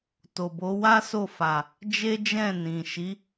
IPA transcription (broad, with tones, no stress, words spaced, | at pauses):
to˨bo˨˦ wa˦so˦˨fa˨ | d͡ʒe˦d͡ʒɛ̃˦˨nĩ˨ ʃi˨˦